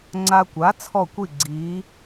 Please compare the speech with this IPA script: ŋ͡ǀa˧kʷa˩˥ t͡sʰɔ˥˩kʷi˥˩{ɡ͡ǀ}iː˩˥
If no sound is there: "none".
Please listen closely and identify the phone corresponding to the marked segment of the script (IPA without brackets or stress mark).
ɡ͡ǀ